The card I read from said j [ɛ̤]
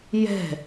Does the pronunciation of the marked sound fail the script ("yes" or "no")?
no